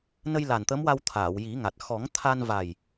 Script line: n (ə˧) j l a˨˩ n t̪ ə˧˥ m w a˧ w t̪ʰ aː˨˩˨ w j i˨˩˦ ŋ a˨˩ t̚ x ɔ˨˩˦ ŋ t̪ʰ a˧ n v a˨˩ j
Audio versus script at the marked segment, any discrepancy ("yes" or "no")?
no